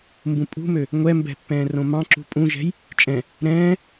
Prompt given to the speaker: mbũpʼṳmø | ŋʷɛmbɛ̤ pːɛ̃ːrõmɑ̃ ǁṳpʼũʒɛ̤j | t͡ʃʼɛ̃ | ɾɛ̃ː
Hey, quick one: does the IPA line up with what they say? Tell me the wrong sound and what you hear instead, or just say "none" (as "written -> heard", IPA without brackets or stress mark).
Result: none